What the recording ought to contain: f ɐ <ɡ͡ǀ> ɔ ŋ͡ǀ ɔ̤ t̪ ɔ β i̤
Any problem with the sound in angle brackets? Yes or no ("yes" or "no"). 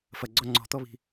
no